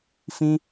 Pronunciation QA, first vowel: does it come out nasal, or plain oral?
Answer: nasal